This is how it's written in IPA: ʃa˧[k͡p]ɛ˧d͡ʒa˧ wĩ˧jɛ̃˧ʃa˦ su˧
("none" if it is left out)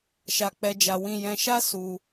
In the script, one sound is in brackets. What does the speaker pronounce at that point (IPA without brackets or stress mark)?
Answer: k͡p